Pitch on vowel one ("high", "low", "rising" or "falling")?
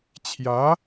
rising